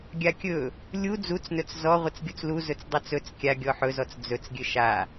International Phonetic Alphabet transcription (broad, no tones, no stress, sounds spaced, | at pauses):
ɡʲ a kʲ ɵ | lʲ u d͡z u t͡s n ɵ t͡s z ɔ ʁʷ ɘ t͡s ɡʲ u t͡s l u z ɵ t͡s dˤ o t͡s ɵ t͡s kʲ a ɡʲ ɔ ħ ɵ z ɔ t͡s d͡z ɵ t͡s ɡʲ ɘ ʃ a